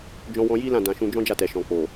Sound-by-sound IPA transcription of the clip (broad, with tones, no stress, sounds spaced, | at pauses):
d͡ʒ ɔ̃˧ w ɔ̃˧ j i˦ l ã˦˨ d ã˧ ʃ ũ˦ d͡ʒ ɔ̃˦ d͡ʒ a˦˨ t ɛ˨ ʃ ɔ̃˨ k͡p o˨